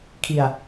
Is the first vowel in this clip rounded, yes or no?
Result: no